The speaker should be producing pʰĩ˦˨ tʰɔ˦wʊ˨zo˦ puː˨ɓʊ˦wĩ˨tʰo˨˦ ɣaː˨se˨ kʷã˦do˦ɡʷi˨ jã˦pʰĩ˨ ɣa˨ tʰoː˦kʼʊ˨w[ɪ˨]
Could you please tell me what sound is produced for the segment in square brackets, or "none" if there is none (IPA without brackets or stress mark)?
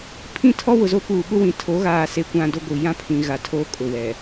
ɛ˨